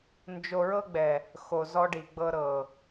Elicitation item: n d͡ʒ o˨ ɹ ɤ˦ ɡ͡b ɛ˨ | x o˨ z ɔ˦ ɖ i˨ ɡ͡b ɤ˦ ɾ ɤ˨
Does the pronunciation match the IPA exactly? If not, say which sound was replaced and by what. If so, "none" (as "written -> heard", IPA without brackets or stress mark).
none